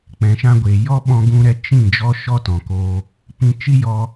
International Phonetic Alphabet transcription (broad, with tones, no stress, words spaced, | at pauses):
k͡pɛ̃˨ʃã˧ ɡʷe˨ jɔ˦ɓɔ̃˧ ɡũ˧ɾɛ˧ t͡ʃĩ˦˨ d͡ʒɔ˦ʃɔ˦tɔ̃˨koː˧ | pĩ˧ t͡ʃi˦jɔ˧